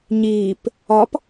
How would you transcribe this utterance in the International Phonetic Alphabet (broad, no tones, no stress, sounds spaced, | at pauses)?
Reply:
ɲ iː p | ɒ p